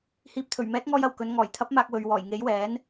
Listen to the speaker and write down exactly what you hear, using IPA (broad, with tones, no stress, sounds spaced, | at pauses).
h iː˨ p̚ t̪ʰ ɵ˨˩ ɥ m ɛː˨˥ t̚ ŋ ɔː˧ j ɐ˨˩ w k ɵ˨˧ n ŋ ɔː˨˩ j t̪ʰ ɐ˨˥ p̚ m aː˨ k̚ w ɵ˨ ɥ w ɔː˨˩ j ŋ e˨˥ j w ɛː˨˥ n